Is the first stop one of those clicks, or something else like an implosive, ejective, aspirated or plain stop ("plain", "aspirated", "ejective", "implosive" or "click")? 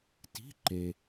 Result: plain